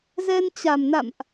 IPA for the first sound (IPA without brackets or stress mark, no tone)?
z